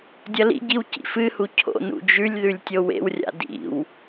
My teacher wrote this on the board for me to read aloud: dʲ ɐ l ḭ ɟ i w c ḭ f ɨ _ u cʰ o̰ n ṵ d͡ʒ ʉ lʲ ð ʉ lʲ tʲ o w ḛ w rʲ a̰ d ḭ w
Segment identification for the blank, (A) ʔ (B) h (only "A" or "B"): B